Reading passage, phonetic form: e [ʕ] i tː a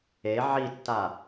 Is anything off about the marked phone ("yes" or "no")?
no